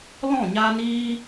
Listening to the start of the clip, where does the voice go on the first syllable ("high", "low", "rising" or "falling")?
falling